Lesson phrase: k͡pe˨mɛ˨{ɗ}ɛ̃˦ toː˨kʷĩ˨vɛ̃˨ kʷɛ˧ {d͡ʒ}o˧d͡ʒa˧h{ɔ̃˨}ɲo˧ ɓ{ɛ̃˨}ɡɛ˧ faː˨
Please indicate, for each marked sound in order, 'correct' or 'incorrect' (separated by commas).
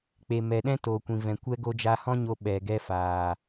correct, incorrect, incorrect, incorrect